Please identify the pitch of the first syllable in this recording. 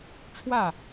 falling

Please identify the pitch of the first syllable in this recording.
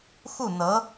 falling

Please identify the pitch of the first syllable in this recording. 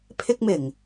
high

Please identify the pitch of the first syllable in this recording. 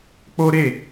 high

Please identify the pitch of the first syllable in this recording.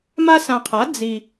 high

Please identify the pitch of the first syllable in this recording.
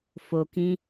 low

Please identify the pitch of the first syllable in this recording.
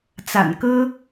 low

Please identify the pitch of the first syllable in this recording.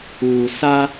low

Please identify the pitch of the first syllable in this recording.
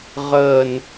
low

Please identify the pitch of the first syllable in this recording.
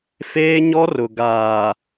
high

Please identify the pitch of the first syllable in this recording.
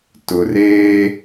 low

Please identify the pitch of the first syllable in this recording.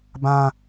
high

